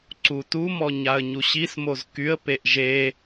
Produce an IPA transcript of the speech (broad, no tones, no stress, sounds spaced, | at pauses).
ǀ u t u m ɔ ɲ a ə̯ ɲ u ɕ i s m o z k y ə̯ p e ʔ ʒ e